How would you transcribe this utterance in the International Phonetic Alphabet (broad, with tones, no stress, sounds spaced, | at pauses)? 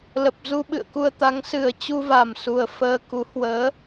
l ə˨˩ p̚ z u˧ ɓ ɨ̰˧˨ ə̯ k u˧ ə̯ t̪ a˨˦ ŋ s ɨ˨˩ ə̯ t͡ɕ u˧ v a˨˩ m s u˨˩ ə̯ f əː˧ k u˨˦ h w əː˨˦